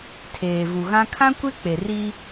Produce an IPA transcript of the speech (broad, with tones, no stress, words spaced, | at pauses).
tʰeː˨vu˨ɣã˦ kʰã˦kʷe˦ k͡pe˨ri˦